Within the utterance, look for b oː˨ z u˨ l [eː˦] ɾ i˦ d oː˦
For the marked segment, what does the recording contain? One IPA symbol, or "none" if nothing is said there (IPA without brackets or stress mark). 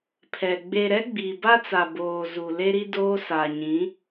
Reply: e˦